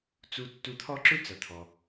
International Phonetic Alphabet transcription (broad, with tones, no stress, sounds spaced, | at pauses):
t͡s u˧ tː u˧ t̪ʰ ɔ˥ ǁ ʏ˥ t͡s ɐ˩ t̪ʰ ɔ˩